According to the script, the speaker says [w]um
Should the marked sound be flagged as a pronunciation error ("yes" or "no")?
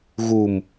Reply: yes